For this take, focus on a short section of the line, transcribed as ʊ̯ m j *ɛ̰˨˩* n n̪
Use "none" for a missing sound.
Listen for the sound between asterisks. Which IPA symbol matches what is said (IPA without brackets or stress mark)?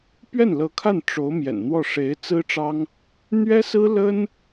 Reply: ɛ̰˨˩